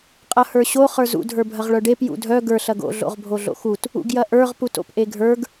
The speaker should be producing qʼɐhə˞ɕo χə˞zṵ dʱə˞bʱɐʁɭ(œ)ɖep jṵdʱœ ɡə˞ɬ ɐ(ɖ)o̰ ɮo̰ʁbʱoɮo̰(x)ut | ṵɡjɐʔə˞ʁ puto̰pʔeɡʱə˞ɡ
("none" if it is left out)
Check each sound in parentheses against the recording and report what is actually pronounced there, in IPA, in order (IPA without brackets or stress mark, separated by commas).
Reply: œ, ɡ, x